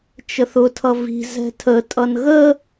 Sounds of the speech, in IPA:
t͡ʃ ə θ ʊ tʰ ʌ v i̤ z ɛ̤ tʰ ə tʼ ʌ n ɣ ə

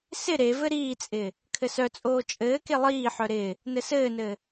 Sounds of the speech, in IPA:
s ɪ ɾ e v ɘ ɾ iː t͡sʼ ɪː | kʰ ɘ s œ t͡sʼ oː t͡ʃʼ ɘː k e lˠ iː ħ œ ɾ ɪː | n ɘ s ɘː n ɘː

